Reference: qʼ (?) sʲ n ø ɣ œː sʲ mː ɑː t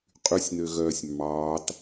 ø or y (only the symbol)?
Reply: y